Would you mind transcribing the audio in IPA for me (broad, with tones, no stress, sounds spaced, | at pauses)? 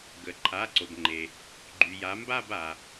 ɡ ə˩ ǃʰ a˩˧˩ ǀ o˩ b ŋ͡ǃ e˩ | ɡ͡ǃ y˩ j a˩˧ m b a˦˨ b a˩